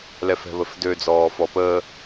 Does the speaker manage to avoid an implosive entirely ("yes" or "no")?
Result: yes